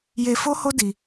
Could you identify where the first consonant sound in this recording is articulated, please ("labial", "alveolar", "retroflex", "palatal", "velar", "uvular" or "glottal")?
palatal